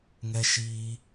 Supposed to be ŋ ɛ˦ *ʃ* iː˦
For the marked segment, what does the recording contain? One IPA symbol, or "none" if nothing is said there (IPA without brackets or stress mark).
ʃ